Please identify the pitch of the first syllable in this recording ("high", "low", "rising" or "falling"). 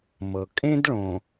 low